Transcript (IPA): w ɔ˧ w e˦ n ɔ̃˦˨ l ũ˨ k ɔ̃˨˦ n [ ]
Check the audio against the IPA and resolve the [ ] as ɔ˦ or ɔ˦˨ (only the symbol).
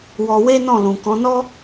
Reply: ɔ˦